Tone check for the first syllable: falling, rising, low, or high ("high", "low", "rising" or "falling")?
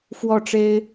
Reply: falling